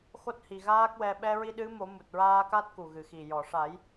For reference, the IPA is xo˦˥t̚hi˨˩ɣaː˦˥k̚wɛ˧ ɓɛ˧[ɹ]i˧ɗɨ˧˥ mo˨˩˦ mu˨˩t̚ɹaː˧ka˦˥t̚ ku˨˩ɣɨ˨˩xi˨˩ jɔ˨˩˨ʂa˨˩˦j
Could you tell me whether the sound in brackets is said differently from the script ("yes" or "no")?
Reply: no